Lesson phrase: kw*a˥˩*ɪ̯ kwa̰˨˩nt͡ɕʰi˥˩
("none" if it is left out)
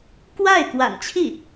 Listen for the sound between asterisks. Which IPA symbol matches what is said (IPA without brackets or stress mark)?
a˥˩